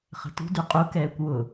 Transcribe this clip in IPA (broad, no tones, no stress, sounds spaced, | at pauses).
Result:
χ ə̤ t ṳ d y qʼ u k ɛː kʷ w ʊ